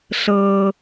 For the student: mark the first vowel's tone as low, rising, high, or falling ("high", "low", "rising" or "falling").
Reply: high